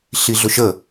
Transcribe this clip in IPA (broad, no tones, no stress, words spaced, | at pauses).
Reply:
ɬiɮʊʃə